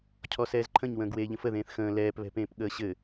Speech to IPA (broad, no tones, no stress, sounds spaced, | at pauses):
cʰ ɔ s ɛː z ǃʰ ə̃ ɲ w ə̃ː ɡ w eː ʎ ə̃ f ə ð ẽː θ x ə̃ː l ɛː p β ɛ̤ p ẽː p ɠ əː ɕ ɘ